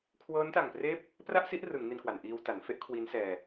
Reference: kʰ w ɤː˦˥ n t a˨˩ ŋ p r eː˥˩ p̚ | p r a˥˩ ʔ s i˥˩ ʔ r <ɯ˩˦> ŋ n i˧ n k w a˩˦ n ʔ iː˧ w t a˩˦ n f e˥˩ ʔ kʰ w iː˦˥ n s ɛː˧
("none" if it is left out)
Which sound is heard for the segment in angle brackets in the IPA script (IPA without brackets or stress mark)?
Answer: ɯ˩˦